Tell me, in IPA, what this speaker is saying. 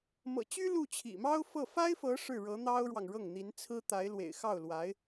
m ɤ̰˨˩ t͡ɕ y˥ l u˥˩ t͡ɕʰ ḭ˨˩ m ɑ˥ ʊ̯ f ɤ˥˩ f a˥ ɪ̯ f ɤ˧˥ ʂ ɻ̩˥˩ ɻ ɤ˧˥ n̪ ɑ˥ ʊ̯ ɻ w ɑ˨ ŋ ɻ ɤ˥˩ ŋ n̪ i˧˥ n t͡sʰ ɹ̩˥ t̪ a˧˥ ɪ̯ l w ḛ˨˩ ɪ̯ x ɑ˥˩ ʊ̯ l w a˧˥ ɪ̯

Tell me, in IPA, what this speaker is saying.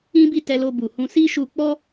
ĩ˦ b i˦˨ t ɛ˧ l o˧ b u˨ h ũ˧ s i˦ ʃ u˧ k͡p ɔ˦

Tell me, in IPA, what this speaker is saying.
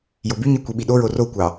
j o b y ɲ i kʷ i ɓ i ɗ o ɹ o r o kʷ ɑ

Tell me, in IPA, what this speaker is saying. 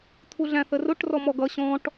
t̪ʰ u ɮ æ̃ θ ə r ʊ ʈ r ɔ m ɔ ɡ ʌ ɕ ɔ̃ ʈ

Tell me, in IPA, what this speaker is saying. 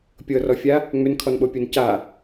pʲ ɤ r ɔ fʲ a | ŋ͡m ʏ n kʰ ɔ n ɓ o pʲ o n c a

